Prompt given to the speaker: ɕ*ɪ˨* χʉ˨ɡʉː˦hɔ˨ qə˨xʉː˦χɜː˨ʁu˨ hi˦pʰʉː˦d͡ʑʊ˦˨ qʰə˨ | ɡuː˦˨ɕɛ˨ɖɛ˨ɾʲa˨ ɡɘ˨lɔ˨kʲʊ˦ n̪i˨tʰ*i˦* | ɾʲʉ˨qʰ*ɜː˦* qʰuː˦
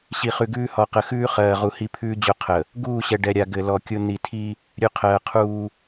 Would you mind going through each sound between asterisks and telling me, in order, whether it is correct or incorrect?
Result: incorrect, correct, incorrect

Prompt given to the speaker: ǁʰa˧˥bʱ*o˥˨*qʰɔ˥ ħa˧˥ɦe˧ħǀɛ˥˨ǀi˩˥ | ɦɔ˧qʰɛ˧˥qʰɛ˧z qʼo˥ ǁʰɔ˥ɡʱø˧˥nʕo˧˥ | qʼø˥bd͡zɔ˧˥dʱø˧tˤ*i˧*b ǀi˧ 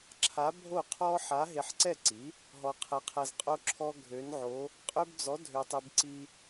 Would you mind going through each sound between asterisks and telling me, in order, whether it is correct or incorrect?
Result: correct, correct

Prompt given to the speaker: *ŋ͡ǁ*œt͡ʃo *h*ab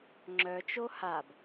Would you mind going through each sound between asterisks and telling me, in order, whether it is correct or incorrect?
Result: correct, correct

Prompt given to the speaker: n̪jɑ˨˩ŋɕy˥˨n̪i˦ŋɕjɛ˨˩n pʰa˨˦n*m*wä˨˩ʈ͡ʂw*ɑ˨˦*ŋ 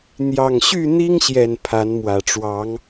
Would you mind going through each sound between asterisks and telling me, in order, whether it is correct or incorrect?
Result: correct, correct

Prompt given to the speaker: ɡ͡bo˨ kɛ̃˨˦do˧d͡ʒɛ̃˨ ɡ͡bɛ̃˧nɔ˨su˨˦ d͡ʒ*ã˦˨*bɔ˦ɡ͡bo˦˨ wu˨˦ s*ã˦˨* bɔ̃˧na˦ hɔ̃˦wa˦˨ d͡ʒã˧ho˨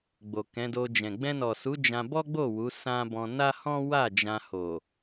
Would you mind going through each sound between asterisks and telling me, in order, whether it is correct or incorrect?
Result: incorrect, incorrect

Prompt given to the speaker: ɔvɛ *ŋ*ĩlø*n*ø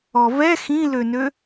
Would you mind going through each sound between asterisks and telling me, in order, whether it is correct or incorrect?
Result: incorrect, correct

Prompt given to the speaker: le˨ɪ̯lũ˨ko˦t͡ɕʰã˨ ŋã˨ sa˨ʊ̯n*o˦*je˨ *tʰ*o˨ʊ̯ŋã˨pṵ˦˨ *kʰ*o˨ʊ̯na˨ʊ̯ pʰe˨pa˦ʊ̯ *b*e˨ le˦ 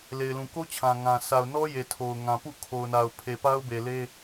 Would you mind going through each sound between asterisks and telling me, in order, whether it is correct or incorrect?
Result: incorrect, correct, correct, correct

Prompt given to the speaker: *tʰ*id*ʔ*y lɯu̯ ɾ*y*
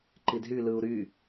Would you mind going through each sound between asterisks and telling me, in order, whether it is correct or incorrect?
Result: incorrect, incorrect, correct

